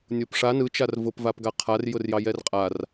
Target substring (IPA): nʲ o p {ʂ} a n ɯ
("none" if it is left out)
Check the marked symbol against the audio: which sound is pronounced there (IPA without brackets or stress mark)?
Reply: ʂ